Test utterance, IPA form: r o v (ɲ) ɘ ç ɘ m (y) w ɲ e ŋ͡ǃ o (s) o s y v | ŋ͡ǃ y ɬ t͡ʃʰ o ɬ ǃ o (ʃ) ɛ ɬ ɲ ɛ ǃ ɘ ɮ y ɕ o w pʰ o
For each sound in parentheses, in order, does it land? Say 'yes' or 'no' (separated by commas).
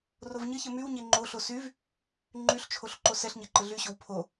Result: yes, yes, no, no